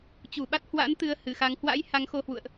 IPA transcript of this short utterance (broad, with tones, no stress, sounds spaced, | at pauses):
t͡ɕ u˧˩ ɓ a˦˥ t̚ h w a̰˧˥ n t̪ ɨ˧ ə̯ h ɨ˧˩ x a˨˦ ŋ h w a̰˧˥ j h a˨˦ ŋ x o˧ h w ṵ˧˨ ə̯ ʔ